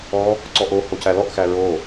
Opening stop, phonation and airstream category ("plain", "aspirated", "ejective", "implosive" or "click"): click